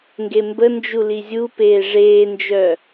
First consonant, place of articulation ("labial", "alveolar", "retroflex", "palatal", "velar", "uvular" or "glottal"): velar